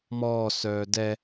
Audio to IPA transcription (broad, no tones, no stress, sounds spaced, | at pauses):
m ɔː s œː d ɛ